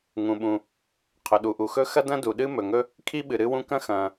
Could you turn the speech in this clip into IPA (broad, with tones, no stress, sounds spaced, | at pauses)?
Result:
ŋ ũ˩ ɓ ũ˩ | qʰ ɵ˩ ɗ u˩ ʔ u˩ x ɵ˥ x ɐ˥ d ɐ̃˥ d u˩ ɗ ɨ˥ m ɵ˩ ŋ ɵ˥ | kʰ i˥ ɓ ɨ˩ ɾ ɨ˥ w ũ˥ k ɐ̃˥ x ɐ̃ː˩